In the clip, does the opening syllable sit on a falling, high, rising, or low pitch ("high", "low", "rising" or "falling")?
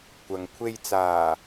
low